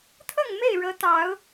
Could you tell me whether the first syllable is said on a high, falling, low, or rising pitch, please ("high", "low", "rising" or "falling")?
falling